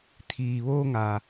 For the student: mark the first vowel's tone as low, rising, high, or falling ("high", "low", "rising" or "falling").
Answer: low